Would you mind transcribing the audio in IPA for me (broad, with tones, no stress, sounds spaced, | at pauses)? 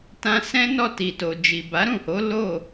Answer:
t ã˧ s ɛ̃˦ n ɔ˦˨ t i˨ t o˨ d͡ʒ i˨ b a˨˦ ɾ ũ˦˨ h o˨˦ l o˦˨